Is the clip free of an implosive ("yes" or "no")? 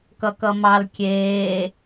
yes